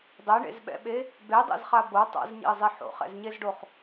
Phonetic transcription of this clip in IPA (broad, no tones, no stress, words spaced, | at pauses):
dˤɛɳḛzɓɛ̰ɓe | bedˤɛ̰zχa bo tˤa̰zɲḛə̯zˤe ħo̰χɛ̰zɲezɖoχ